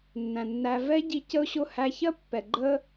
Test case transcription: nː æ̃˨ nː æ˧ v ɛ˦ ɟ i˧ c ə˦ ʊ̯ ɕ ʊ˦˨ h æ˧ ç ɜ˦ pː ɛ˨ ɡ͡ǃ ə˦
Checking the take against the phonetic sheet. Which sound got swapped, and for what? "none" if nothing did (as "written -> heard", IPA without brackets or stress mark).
none